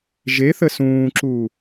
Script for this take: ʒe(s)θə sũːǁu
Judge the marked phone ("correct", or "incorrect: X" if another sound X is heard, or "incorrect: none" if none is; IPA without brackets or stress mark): incorrect: none